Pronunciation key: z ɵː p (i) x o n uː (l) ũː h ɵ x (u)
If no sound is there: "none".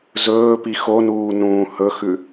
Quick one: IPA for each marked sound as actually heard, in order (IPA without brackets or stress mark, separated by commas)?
i, n, ʉ